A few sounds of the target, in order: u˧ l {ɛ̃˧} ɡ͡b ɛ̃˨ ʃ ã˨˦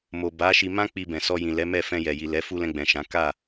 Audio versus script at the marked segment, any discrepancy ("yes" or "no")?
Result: no